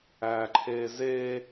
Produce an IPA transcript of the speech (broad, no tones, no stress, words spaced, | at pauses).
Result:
æːǃʰeːzeː